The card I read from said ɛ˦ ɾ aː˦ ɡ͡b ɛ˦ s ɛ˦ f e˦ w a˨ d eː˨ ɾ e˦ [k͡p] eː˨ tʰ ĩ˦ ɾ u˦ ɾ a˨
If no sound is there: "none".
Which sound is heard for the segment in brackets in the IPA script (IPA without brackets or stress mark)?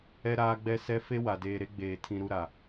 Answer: ɡ͡b